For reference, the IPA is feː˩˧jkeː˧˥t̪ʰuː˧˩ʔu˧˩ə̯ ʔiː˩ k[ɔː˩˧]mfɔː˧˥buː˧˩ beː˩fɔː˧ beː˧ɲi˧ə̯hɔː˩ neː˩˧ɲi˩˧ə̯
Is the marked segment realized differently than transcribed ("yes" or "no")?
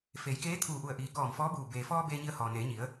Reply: yes